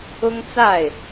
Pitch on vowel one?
high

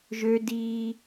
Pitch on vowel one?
high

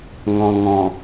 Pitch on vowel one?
low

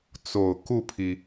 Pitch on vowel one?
low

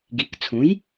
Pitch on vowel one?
rising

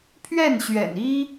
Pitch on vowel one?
falling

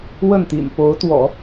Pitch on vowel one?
falling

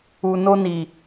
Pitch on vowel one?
low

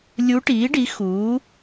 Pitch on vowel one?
rising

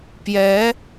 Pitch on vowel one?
rising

